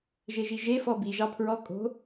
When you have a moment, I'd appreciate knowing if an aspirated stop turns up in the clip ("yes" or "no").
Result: yes